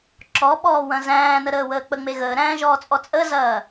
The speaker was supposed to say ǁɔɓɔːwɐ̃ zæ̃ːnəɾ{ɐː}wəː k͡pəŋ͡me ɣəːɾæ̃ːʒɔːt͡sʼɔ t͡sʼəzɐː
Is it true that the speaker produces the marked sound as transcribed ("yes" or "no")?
no